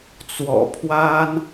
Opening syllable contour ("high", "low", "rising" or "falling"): low